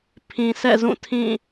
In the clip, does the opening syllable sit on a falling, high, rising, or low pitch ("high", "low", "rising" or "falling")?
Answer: low